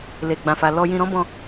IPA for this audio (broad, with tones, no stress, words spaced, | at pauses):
le˨ɡ͡bã˨fa˨ lɔ˧jĩ˧ ɾɔ̃˦bɔ̃˧